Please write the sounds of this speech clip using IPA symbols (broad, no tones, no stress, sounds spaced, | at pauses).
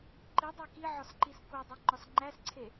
ǃ i dˤ æ k i ʕ ɒ s ǃ i s k o dˤ i ŋ͡ǃ ɒ s ŋ͡ǃ æ s ǀʰ e